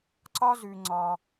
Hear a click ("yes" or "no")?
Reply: yes